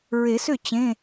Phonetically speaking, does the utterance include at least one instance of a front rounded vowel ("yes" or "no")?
yes